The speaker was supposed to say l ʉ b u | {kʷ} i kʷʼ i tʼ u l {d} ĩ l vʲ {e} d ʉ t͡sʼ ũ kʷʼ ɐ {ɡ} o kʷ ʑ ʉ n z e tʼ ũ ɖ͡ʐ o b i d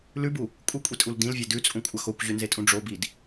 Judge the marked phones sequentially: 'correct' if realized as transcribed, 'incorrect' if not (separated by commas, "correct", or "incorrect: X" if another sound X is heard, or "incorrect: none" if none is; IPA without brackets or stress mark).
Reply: incorrect: kʷʼ, correct, correct, incorrect: x